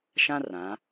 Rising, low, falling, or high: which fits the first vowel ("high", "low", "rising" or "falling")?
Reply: high